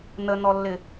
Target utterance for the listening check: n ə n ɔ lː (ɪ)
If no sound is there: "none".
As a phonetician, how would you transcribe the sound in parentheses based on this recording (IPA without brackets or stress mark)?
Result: ɪ